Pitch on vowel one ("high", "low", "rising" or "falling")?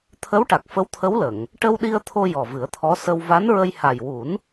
rising